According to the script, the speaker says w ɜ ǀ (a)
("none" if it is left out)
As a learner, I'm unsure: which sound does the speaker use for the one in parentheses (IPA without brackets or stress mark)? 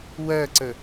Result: ə